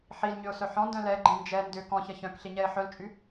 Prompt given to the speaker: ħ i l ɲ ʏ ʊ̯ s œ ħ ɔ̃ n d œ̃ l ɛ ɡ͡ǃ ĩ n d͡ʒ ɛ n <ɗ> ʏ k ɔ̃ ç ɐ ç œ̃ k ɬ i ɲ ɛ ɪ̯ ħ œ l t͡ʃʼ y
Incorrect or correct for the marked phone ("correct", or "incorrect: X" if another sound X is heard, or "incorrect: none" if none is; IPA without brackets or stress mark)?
incorrect: d